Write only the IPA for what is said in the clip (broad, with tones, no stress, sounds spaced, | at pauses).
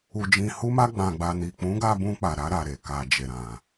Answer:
u˧ d͡ʒ ĩ˧ h u˦ m a˦ ɡ͡b ã˧ ɡ͡b a˧ n i˨ k͡p ũ˨˦ ɡ a˧ b ũ˧ k͡p a˨ ɾ a˧ ɾ a˨ ɾ e˨ k a˨ d͡ʒ e˨ ɾ ã˨